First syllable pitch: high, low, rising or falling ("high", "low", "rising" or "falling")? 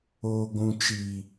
low